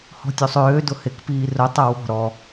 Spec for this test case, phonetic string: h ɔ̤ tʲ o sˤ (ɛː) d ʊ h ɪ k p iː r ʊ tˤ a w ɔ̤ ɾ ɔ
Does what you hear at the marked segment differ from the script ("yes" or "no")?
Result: yes